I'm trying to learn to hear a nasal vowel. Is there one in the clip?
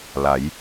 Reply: no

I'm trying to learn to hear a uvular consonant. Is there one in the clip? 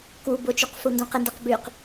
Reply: yes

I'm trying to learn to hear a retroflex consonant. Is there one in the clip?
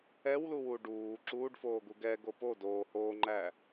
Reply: yes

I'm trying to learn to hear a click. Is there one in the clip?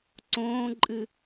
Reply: yes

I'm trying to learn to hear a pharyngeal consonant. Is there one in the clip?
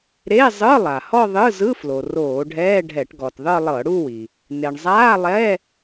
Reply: no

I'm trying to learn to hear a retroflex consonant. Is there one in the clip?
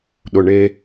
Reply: yes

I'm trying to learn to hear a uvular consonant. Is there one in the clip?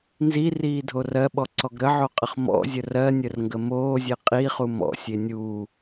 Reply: yes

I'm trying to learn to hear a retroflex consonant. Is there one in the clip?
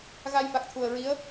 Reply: no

